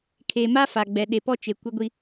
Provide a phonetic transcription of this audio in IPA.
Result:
kʰe˨ma˦ fa˨ɡ͡bɛ˨ ɗe˨pɔ˦t͡ʃe˨ kʷɪ˦ɡʷi˦

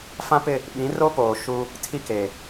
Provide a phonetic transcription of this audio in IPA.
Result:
fã˦pɪ˦˨ | ɓĩ˨˦ro˦poː˨ ʃu˦ | tʰi˦ ke˨

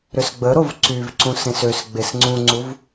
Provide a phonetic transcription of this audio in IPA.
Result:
ɾʏsɡ͡bə ɾovǀyvǀũ sẽsøs ɡ͡besŋ͡ǀũŋ͡ǀuv

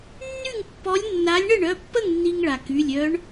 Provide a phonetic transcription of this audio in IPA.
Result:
nːy˥˨ŋ pːɔ˧˥lʲnːa˧˥lʲ ɳə˥˨ɳœ˩˧˩pːə˥˨ŋ nːi˧ŋ ɭa˩ ky˩˧˩lʲœ˧˥ɳ

